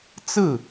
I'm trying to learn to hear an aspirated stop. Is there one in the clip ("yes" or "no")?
no